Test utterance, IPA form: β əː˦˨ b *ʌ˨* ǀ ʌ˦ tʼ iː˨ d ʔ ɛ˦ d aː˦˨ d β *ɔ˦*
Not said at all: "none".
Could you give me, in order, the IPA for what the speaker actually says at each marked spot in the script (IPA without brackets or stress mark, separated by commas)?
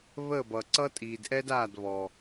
ʌ˨, ɔ˨